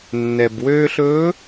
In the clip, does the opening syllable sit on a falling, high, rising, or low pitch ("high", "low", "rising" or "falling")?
low